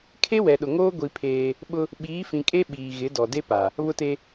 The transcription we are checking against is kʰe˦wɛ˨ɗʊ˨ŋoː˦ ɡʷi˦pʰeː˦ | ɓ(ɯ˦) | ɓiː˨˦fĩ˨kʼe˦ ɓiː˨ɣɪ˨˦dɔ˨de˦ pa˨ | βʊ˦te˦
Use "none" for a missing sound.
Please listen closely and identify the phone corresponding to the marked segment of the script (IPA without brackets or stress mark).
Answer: ʊ˦